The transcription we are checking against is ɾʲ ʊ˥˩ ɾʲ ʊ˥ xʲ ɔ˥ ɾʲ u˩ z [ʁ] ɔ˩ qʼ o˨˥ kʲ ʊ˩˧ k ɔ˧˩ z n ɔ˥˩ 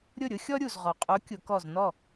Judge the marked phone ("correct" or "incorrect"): correct